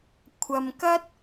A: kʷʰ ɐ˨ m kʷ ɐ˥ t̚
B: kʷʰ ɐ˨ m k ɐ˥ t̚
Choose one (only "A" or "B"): B